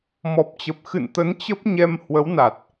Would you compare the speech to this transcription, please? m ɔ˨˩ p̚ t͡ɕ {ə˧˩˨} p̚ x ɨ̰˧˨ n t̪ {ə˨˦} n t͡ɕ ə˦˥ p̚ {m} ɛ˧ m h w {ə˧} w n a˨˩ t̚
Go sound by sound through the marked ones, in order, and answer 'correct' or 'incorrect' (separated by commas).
incorrect, correct, incorrect, incorrect